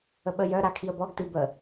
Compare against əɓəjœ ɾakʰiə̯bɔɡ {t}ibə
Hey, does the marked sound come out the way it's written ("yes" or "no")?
yes